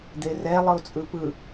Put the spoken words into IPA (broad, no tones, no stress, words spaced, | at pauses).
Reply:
d̪erɛ lˠɯo̯t͡sʼɯpɯ